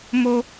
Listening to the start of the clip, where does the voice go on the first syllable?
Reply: high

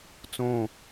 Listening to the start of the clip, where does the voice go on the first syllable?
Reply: falling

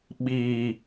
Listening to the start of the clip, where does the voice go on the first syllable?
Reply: low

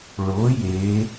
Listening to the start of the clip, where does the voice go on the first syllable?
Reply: rising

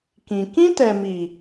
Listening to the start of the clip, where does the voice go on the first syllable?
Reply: low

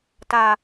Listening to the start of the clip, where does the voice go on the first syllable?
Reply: low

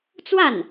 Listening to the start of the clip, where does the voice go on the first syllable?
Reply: falling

